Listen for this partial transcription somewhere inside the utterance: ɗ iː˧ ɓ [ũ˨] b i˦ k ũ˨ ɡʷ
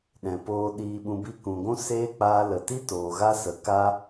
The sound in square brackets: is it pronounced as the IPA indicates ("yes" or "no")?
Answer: no